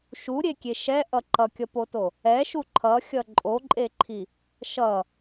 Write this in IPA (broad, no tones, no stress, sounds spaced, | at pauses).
ʃ u ɾʲ e kʲ e ʃ ɛ ʔ ʌ ǃ ʌ kʲ ʌ p o t o | ɛ ʃ u ǃʰ ʌ xʲ ʌ ǃʼ o ǃʼ e ǃʰ i | ʃ ʌ